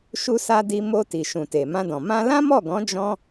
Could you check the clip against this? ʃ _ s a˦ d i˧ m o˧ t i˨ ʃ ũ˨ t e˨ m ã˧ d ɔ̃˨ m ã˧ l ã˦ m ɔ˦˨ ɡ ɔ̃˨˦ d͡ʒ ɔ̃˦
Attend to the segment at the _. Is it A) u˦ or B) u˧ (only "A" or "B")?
A